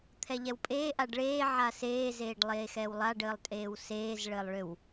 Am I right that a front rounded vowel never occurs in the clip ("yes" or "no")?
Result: no